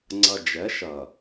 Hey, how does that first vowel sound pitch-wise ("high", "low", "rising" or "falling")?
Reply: low